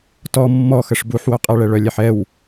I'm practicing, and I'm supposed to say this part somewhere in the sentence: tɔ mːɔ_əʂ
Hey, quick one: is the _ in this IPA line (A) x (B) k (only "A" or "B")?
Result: A